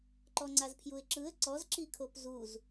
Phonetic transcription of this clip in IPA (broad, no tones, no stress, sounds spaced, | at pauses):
ǃ ɔ ŋ͡ǀ a z pʰ j u ɪ̯ ǁ ɯ ə̯ ǀ ɔ z ǁ i kʰ o p z u z